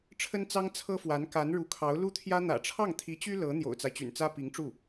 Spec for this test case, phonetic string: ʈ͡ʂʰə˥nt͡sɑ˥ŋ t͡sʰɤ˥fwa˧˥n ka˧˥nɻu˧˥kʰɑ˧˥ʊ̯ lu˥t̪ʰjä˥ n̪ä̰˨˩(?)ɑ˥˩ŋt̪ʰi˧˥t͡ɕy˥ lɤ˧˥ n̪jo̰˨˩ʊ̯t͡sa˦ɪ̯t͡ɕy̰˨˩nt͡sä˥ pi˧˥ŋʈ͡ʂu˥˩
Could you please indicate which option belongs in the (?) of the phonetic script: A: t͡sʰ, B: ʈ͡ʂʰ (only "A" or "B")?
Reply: B